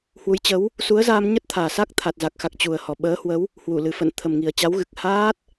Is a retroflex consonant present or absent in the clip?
absent